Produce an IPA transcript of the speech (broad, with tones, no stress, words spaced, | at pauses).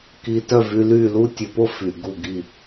ki˧tœ˦˨vy˧ly˦˨ lu˦tʲə˧po˦ fy˨ ɡu˦˨ɡi˦˨